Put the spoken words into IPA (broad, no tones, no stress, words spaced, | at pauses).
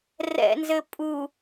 rɛ̰nzɘ pʼu